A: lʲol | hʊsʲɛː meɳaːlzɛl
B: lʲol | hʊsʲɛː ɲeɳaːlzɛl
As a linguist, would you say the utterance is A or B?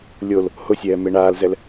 A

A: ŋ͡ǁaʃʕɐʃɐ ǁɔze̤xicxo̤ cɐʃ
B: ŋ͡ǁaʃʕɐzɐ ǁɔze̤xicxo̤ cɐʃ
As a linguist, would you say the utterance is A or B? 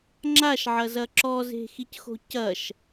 B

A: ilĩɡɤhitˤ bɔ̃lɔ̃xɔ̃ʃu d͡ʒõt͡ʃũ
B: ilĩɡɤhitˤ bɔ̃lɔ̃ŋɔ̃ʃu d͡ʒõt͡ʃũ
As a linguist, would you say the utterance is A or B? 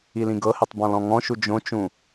B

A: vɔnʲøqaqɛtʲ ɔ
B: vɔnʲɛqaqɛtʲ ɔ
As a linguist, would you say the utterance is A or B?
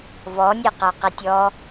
B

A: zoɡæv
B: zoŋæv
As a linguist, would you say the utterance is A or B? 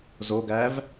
A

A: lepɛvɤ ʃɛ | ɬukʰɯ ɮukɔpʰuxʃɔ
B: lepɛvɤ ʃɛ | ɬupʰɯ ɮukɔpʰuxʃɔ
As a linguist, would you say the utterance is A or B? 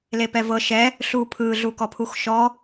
B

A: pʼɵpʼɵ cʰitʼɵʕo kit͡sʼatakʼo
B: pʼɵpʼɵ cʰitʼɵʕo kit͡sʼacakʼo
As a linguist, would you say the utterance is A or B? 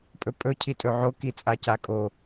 B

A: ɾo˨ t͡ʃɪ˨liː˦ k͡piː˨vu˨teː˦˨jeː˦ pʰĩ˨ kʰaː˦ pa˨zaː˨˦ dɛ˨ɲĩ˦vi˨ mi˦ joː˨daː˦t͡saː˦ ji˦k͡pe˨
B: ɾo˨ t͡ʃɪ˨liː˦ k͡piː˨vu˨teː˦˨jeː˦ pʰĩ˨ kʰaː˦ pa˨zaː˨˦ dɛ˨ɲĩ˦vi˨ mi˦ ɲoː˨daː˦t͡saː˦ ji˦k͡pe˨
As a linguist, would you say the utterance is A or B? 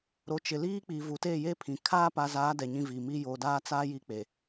A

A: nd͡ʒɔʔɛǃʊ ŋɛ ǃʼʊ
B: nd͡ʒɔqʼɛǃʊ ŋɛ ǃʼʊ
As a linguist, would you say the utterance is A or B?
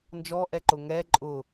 A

